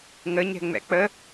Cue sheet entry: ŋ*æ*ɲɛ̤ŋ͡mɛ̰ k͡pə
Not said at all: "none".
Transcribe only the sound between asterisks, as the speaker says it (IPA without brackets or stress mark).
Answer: ə